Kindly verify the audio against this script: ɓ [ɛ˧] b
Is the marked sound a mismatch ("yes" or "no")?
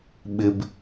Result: yes